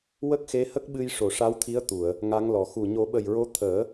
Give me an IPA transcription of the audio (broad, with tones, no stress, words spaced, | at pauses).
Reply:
wə˦˥k̚xe˧˥hə˦˥k̚ɓɨ˧j ʂo˨˩ʂa˧˥wt̪ʰi˧˥ə̯ t̪u˨˩˨ə̯ | ŋa˧˥ŋlɔ˨˩˨ xu˨˩ ɲo˨˩˦ɓə˨˩jɹo˧˥ t̪ʰəː˨˩˦